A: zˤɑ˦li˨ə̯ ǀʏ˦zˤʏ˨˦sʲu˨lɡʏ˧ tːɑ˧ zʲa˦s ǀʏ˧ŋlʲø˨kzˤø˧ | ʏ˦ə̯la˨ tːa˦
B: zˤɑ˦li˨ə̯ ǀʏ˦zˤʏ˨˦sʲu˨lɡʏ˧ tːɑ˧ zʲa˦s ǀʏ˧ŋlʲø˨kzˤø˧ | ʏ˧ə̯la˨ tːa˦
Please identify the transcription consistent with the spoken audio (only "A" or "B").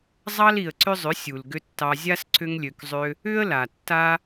A